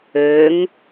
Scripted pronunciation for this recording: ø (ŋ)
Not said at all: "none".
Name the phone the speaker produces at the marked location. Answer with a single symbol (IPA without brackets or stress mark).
ŋ